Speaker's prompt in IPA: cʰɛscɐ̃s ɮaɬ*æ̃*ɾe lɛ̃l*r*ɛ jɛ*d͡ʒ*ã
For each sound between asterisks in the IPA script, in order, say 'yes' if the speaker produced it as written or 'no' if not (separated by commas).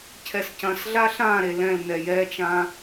no, no, no